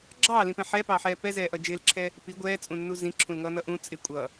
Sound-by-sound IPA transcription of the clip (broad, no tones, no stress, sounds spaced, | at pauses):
ɡ͡ǁ ɑː l ĩ p ɛ̃ ħ ɛ p ɑː ħ ɛː p ɛ z ɛː ʔ ʌ d͡ʒ ɪː l ǁʰ ɛː | p i ɡʷ ɛː t͡sʼ ũ nː u z ĩ ǁʰ ũ l ŋ ʌː n ʌ ʔ ũ t͡sʼ ɪ kʷʼ ʌː